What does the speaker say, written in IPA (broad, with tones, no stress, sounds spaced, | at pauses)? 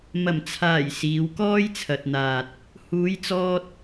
m ɐ˨˩ m t͡sʰ aː˨˩ j s iː˨˧ w k ɔː˥ j t͡sʰ ɐ˨ t̚ n̪ aː˨ t̚ | h uː˨˧ j t͡s ɔː˧ t̚